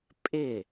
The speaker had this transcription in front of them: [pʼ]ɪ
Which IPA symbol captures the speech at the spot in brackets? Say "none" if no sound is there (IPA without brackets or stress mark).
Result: pʼ